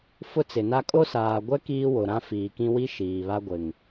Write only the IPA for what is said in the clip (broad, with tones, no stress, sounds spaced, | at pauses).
f ʊ˦ t͡s ɪ˨ n a˦ kʼ o˦ s aː˨ ɡʷ ɛ˦ k iː˦ w o˨ ɾ ã˦ f iː˨ k ĩ˦ w i˦ ʃ iː˨ β a˦ ɡʷ ɪ˨ ŋ